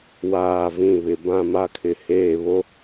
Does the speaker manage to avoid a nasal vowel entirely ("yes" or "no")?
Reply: no